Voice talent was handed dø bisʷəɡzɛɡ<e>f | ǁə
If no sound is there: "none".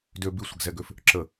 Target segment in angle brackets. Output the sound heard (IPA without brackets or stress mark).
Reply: ø